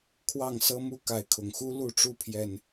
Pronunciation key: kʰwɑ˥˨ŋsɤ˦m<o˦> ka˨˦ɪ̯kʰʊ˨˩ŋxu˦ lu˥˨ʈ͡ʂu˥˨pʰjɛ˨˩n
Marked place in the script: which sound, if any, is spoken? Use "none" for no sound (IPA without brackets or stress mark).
u˦